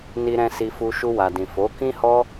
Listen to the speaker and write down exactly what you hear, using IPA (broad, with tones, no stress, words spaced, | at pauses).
ni˧ɾɛ̃˧ si˧fu˧ ʃu˧wa˨dĩ˨ fo˨˦ kĩ˦hɔ˦